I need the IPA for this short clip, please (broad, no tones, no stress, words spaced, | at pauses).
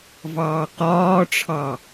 vɑːqɒːʈ͡ʂʰɑ